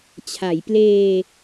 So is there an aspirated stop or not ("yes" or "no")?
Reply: yes